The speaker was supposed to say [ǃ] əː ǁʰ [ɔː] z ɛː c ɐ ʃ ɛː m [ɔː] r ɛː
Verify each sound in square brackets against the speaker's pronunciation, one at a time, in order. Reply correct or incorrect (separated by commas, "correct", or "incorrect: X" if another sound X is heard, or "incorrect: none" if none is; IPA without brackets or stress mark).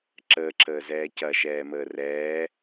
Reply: incorrect: ǁ, incorrect: əː, incorrect: əː